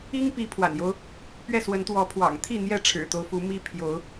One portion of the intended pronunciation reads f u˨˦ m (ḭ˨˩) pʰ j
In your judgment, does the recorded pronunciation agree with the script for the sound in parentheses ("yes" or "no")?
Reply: no